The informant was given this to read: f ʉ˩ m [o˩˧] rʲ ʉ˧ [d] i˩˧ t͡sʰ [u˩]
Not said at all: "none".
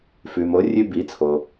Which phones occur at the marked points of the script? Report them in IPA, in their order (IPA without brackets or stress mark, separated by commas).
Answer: o˩˧, b, o˩